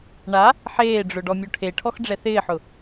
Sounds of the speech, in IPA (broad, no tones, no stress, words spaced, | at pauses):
ɳa | ħeːɖ͡ʐʊ ɖɔmʲoʈʰeʈʰɔx ɖ͡ʐɛθɪːħʊ